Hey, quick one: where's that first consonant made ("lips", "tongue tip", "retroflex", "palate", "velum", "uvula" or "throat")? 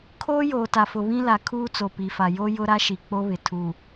velum